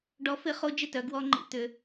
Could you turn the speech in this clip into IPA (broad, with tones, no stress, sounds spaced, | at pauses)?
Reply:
ɖ ɔ˧˥ f ɪ˧˥ χ o˧˥ d͡ʒ ɪ˥˩ t œ˧˥ ɡ w ɔ˧˥ ŋ͡ǃ ḭ˧˥ t̪ ʏ˧˥